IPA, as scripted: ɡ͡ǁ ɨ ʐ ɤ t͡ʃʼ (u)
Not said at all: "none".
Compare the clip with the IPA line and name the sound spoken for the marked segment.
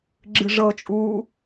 uː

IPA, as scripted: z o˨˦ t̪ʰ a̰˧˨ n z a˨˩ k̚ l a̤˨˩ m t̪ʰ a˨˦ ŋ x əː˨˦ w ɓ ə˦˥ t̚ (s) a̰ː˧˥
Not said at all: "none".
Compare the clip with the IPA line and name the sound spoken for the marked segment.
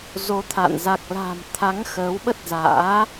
z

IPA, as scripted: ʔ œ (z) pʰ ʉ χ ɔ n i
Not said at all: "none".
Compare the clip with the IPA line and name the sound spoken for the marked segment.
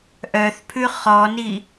θ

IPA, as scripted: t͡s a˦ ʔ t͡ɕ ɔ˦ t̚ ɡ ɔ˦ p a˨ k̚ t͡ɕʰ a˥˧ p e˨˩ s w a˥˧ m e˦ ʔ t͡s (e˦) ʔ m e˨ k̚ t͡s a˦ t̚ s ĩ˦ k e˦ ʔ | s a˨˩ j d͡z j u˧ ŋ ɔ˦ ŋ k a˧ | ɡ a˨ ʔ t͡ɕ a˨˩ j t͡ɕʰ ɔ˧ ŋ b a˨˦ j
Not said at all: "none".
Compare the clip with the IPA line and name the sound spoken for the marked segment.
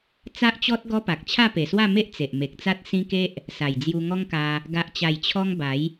e˨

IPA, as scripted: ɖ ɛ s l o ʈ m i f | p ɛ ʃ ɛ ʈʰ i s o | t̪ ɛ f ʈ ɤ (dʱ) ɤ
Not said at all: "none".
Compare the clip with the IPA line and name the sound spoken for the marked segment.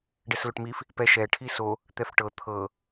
t̪ʰ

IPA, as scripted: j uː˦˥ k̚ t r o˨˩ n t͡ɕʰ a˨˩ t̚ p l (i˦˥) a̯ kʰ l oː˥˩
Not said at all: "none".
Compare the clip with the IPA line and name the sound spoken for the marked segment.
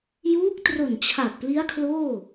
i˦˥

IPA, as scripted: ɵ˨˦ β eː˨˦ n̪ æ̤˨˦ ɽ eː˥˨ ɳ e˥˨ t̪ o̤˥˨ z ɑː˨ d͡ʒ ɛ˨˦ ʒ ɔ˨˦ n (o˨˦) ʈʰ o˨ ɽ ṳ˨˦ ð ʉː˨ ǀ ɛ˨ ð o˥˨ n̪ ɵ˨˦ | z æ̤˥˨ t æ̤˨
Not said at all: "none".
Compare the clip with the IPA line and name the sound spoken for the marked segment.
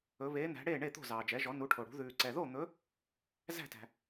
u˨˦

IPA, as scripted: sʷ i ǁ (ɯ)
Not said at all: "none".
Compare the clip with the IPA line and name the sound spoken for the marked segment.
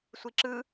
ɯ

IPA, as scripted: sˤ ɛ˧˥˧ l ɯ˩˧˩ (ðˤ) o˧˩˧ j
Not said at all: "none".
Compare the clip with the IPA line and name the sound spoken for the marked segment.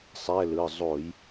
zˤ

